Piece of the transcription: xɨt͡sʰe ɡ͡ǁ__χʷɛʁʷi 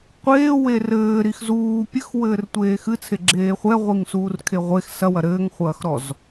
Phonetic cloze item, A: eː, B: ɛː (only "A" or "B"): A